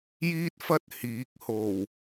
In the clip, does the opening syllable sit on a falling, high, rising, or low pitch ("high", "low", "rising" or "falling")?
high